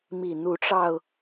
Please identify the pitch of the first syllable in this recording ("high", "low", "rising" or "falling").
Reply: low